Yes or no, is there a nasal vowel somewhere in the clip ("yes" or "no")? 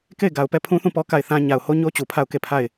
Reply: yes